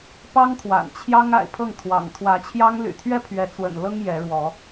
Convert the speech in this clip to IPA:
p ɑ˦ ŋ t̪ʰ w a̰˨˩ n t͡ɕʰ j ɑ˦ ŋ a̰˨˩ ɪ̯ pʰ ɤ˥˨ ŋ t̪ʰ w ɑ̰˨˩ ŋ t̪ʰ w ä˨˦ t͡ɕʰ j ɑ˦ ŋ l y̰˨˩ t̪ʰ ɥ ɛ˦ pʰ ɥ ɛ˨˦ t͡s w ə̰˨˩ n l ɤ˦ ŋ j ɛ˨˦ ɻ w ɔ˨˦

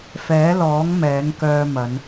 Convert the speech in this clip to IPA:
f ɛː˨˥ l ɔː˨˥ ŋ m ɛː˨˥ ŋ k œː˧ m ɐ˨˧ n

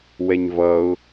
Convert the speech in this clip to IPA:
w ɛ ɲ v ʌ ʊ̯

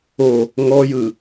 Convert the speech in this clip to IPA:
o | ŋ ɔ j ɯ

